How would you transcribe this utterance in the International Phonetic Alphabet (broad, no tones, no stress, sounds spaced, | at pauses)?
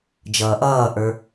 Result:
d͡ʒ ʌː ʔ ʌː ʔ ə˞